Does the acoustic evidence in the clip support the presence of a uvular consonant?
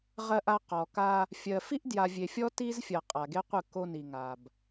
yes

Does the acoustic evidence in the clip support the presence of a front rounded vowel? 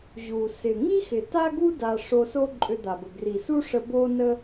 yes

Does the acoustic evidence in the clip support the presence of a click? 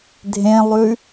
no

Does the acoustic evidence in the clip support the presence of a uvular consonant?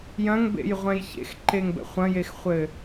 yes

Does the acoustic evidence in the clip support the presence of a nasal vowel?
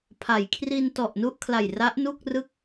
no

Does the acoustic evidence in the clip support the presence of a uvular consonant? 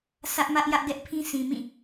no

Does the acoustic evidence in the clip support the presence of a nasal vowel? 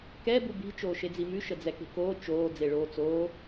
no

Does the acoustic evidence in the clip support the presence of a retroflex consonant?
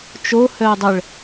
yes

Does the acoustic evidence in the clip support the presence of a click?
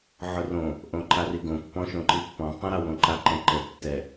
yes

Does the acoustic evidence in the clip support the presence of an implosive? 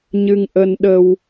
yes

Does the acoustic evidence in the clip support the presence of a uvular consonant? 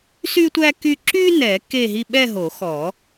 no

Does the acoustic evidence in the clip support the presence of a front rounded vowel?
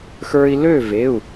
yes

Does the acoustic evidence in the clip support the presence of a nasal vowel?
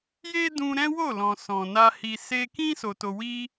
yes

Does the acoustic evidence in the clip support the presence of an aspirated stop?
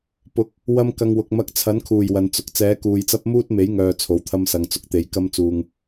yes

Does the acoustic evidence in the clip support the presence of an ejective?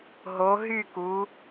no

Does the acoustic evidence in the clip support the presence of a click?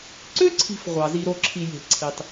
yes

